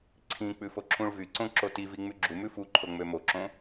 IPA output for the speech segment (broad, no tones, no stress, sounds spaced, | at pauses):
ǀʰ ĩ k͡p ʉ f o ǁ ũ ɭ v y ǀ õ ǁ o t i v i ŋ͡m y ɡ͡ǁ u m ʉ f u ǃʰ o ŋ͡m ø m o ǁ õ